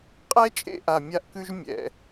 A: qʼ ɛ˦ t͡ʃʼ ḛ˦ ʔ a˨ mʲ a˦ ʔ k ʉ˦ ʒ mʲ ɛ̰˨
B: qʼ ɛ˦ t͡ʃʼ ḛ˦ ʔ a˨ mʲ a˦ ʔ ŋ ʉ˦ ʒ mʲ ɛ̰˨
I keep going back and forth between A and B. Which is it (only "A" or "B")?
A